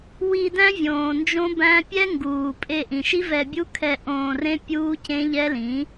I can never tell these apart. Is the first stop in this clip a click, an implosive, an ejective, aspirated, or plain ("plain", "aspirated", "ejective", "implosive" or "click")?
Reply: plain